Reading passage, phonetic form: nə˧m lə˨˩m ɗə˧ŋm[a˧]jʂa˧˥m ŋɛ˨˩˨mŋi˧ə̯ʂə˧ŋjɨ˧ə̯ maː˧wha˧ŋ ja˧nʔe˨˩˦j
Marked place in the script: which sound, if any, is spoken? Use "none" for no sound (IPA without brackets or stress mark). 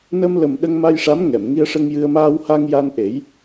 a˧